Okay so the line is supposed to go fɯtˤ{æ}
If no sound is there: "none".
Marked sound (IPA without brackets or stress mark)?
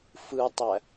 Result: æ